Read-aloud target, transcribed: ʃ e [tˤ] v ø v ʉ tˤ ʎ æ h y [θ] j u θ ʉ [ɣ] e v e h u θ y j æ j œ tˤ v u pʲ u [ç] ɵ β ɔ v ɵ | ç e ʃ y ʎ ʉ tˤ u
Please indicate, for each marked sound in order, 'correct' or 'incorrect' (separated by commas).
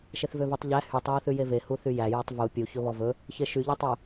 incorrect, incorrect, incorrect, correct